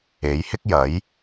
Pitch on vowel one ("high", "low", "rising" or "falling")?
rising